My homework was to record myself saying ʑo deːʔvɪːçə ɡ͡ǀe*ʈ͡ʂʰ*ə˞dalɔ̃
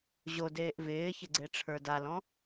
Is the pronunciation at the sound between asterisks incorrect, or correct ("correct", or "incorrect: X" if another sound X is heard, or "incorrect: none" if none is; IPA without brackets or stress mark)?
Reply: correct